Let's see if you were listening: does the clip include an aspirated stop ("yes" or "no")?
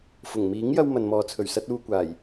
yes